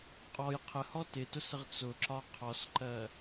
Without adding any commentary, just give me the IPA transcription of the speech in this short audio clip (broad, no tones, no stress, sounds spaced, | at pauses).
qʼ ɔ j qʰ ə h ɔ t ɪ t ʊ s ə ʁ t͡s ʊ ǁ ɒ qʰ ɔ s ǃ ɜ